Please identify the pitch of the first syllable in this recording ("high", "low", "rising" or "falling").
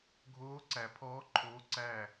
rising